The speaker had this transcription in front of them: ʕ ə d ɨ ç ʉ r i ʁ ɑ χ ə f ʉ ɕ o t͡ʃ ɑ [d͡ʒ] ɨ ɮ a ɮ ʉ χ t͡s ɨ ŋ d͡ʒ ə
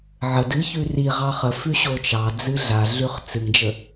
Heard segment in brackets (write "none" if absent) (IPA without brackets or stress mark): d͡z